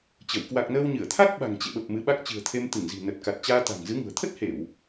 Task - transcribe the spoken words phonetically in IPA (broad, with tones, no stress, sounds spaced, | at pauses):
t͡ɕ ə˧˩ w k w a˨˩ k̚ n əː˧ w ɲ ɨ˧˩ ə̯ t̪ʰ a˦˥ k̚ ɓ a̤˨˩ ŋ t͡ɕ ḛ˧˨ ɓ ə˨˩ p̚ m ɨ˨˦ ɓ a˦˥ k̚ t͡ɕ ɨ̤˨˩ ə̯ t̪ʰ e˧ m t̪ ɨ˧˩ ŋ z i̤˨˩ n ə˨˩ t̚ k a˨˩ t̚ t͡ɕ aː˧ t̪ a̤˨˩ ŋ z ɨ˨˦ ŋ ṳ˨˩ ə̯ t̪ʰ ə˦˥ t̚ h e˧˩˨ w